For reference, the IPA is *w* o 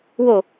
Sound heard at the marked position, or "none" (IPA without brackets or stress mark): w